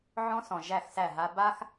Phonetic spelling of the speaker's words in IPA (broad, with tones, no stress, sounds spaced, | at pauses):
ʕ ɔ̃˦ s ɔ̃˨ ʒ æ˦˨ x s æ˦˨ ɦ a˦ b a˦ x